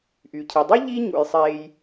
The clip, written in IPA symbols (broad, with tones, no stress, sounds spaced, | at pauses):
ʔ y˩ cʰ i˩ dˤ y˥ ʎ i˥ ɲ ṵ˩ j sˤ eː˨ j